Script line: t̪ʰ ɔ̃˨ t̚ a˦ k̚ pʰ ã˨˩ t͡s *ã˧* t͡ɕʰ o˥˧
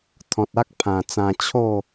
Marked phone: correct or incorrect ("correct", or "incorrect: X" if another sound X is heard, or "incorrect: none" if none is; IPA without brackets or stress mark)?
correct